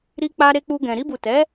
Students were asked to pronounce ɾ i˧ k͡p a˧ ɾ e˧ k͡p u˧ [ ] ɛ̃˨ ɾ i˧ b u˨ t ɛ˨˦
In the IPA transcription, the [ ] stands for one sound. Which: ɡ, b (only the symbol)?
ɡ